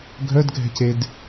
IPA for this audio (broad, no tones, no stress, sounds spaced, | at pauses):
ɡʱ œ d ɡʱ ɛ̤ c e d